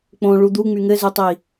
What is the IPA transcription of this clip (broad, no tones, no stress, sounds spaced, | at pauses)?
k͡p õ ɭ u d̪ u ŋ͡m y ŋ ɘ z y tˤ i